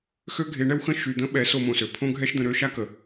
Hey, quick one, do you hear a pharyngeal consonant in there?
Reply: no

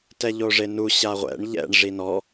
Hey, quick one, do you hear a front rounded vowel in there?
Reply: no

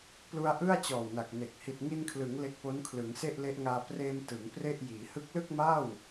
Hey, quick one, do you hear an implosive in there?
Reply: no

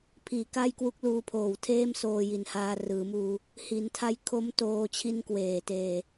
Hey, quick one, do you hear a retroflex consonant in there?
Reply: no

